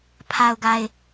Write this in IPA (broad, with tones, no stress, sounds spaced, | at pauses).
pʰ a˨ ʊ̯ ɡ a˨ ɪ̯